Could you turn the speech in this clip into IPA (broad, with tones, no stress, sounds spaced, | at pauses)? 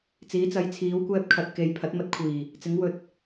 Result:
t͡s iː˨˥ t͡s ɐ˨˥ j t͡sʰ iː˨˥ w kʷ ɛː˧ p̚ kʰ ɐ˨ t̚ k e˨ j pʰ ɐ˨˥ t̚ m ɐ˧ t̚ kʷʰ iː˨˩ | t͡s ɪ˨˥ ŋ w ɵ˨ t̚